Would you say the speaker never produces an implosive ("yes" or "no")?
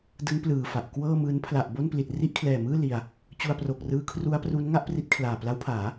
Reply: yes